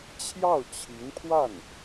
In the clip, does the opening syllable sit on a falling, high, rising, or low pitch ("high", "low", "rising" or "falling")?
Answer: falling